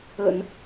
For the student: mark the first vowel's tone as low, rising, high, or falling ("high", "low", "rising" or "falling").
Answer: low